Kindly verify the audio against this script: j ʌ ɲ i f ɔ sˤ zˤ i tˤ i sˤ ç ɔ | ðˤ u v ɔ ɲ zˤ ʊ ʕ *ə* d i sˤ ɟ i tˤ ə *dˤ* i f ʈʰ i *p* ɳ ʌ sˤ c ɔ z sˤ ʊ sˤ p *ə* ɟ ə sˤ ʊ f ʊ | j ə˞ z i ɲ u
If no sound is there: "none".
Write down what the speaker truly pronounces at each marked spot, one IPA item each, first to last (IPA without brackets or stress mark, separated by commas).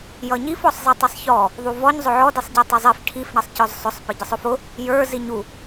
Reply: ɔ, zˤ, f, ə